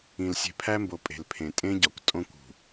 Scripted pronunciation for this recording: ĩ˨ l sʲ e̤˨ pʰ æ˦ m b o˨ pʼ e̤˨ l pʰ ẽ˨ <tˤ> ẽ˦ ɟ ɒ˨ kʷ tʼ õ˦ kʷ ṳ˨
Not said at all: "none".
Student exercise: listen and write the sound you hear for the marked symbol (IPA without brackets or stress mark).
tʼ